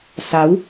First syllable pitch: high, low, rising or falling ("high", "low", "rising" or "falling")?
rising